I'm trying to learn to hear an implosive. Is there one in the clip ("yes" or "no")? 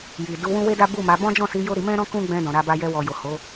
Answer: no